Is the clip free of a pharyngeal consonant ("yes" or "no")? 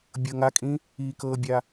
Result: yes